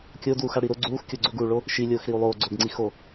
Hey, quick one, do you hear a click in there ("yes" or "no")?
yes